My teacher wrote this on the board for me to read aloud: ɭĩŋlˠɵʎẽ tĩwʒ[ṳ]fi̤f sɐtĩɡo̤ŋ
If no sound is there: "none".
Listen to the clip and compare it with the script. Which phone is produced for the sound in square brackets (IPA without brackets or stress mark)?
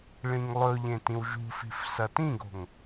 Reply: ṳ